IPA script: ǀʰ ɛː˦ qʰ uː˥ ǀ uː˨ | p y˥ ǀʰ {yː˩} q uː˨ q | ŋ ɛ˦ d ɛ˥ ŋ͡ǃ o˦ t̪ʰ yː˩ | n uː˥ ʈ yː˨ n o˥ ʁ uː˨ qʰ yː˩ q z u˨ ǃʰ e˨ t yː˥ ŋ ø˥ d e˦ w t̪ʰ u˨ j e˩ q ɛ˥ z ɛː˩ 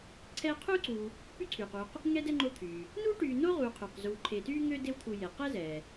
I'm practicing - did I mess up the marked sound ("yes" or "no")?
no